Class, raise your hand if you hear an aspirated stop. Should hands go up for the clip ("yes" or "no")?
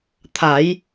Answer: yes